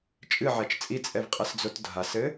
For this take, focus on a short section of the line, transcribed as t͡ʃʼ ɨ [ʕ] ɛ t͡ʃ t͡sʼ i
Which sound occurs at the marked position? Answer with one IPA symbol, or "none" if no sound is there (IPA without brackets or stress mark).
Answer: ʕ